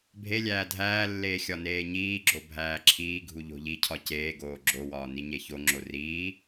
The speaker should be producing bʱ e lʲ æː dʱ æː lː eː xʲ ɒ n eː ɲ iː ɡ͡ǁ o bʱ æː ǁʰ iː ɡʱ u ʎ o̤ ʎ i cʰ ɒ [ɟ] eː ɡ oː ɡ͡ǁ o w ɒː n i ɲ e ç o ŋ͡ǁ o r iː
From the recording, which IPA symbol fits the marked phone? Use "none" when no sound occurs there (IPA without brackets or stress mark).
c